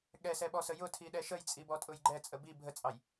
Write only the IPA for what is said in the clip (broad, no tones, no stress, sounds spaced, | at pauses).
ɠ ɛ s ɛ ɓ ɔ s ə j ʊ tʰ i ɗ ɛ ʃ ə j t͡sʼ i b ɔ tʼ ʊ j ɡ͡ǃ ɛ t͡sʼ ə b i bʱ ə t͡sʼ ɑ j